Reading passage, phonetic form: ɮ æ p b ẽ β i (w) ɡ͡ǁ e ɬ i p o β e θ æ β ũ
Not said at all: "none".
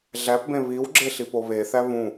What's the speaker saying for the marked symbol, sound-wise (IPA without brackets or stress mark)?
w